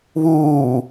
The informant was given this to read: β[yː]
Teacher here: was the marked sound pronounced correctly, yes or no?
no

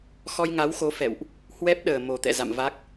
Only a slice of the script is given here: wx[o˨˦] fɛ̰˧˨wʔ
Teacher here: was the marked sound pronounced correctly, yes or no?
yes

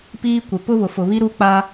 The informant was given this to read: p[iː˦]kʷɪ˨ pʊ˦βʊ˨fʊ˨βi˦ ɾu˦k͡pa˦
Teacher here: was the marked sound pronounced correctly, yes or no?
yes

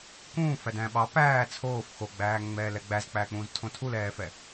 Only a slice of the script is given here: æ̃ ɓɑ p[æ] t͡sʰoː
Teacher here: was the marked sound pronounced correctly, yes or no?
no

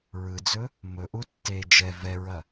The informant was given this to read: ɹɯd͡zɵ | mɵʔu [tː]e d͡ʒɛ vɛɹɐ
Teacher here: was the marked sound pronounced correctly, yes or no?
yes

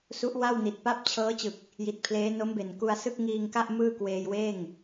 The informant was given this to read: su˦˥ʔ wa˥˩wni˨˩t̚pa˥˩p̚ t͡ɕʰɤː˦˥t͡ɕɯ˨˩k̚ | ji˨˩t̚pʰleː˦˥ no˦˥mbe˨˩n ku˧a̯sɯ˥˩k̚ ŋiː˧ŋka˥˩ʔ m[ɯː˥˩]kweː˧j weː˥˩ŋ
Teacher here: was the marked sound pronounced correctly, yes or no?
yes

